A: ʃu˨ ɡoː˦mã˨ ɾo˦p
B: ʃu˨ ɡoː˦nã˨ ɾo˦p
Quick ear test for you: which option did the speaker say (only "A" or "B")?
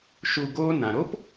B